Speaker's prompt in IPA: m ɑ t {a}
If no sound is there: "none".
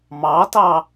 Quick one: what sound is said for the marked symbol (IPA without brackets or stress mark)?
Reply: ɑ